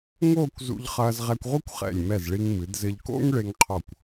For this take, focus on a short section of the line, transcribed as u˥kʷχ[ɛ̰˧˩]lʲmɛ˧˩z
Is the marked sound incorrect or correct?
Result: correct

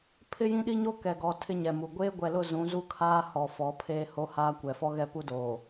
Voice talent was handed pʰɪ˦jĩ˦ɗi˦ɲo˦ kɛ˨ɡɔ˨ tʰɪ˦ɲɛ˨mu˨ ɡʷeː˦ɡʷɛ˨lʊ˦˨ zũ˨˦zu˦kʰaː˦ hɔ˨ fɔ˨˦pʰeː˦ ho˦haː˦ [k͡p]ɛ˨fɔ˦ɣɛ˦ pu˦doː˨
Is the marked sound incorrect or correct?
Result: incorrect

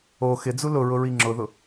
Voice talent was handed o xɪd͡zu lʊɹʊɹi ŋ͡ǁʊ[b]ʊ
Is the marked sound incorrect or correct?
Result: incorrect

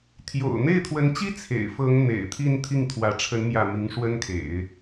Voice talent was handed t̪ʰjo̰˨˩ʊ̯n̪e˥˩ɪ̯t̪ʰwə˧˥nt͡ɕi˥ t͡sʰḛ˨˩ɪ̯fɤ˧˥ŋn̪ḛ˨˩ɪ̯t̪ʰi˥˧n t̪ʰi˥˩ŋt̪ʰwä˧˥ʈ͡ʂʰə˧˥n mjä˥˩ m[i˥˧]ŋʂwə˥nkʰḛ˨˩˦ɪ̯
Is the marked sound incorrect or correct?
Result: incorrect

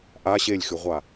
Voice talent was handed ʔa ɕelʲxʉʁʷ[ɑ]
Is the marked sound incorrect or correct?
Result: incorrect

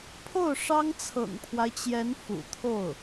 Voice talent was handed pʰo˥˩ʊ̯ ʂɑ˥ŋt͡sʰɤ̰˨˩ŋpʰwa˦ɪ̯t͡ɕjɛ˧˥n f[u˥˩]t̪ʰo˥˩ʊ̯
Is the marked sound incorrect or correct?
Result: incorrect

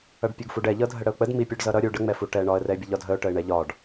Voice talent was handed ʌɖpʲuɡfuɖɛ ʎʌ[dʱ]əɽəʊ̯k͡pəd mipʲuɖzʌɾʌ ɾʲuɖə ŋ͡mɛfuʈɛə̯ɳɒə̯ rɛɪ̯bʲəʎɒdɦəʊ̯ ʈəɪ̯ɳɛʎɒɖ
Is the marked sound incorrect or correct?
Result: correct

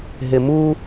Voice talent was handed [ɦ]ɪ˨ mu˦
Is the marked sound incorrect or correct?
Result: correct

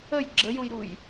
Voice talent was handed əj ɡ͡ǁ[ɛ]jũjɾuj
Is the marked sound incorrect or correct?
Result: incorrect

